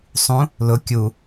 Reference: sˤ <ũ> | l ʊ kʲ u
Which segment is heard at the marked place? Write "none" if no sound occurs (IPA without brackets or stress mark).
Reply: ũ